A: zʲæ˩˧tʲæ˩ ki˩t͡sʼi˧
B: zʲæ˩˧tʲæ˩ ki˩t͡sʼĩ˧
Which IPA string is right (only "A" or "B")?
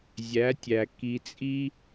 A